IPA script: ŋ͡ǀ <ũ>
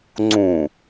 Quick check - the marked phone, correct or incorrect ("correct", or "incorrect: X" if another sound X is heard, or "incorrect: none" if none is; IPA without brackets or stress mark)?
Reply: correct